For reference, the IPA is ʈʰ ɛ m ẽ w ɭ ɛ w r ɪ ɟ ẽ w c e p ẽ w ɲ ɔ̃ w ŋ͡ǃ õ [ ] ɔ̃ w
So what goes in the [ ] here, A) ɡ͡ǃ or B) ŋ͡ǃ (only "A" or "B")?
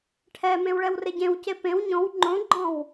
A